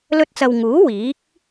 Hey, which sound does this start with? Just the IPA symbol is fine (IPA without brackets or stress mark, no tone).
l